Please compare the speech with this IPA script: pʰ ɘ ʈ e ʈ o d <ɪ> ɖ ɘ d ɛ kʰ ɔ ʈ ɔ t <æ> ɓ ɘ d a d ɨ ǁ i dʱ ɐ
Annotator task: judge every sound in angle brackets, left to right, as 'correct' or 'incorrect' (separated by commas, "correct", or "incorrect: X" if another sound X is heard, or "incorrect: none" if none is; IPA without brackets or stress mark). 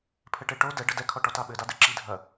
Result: incorrect: ɛ, incorrect: a